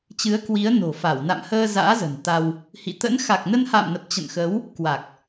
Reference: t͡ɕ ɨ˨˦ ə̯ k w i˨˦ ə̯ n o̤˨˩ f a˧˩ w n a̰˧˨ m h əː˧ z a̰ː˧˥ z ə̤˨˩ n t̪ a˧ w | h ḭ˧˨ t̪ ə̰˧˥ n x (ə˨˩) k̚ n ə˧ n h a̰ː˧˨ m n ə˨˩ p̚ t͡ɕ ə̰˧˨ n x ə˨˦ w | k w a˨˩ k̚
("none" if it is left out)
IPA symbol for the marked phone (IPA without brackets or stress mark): a˨˩